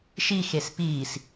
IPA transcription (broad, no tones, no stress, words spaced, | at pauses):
ʃixes piːs